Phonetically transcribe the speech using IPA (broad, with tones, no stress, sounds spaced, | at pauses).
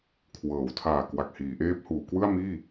kʰ w ɤː˩˦ w tʰ aː˨˩ k w a˨˩ k̚ h iː˩˦ ʔ eː˦˥ p̚ h uː˩˦ k w ɯ˥˩ a̯ m iː˥˩